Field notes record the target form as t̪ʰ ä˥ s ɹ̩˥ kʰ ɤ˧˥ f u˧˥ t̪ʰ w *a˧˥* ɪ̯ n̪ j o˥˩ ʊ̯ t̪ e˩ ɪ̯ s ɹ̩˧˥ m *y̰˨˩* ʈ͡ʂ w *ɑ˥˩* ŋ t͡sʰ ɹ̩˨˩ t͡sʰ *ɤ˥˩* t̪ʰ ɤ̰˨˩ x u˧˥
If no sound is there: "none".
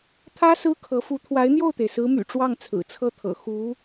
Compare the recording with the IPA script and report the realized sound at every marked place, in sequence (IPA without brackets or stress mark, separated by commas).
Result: a˧˥, y̰˨˩, ɑ˥˩, ɤ˥˩